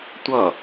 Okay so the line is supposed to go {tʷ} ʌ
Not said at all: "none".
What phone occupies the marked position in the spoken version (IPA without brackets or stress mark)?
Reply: tʷ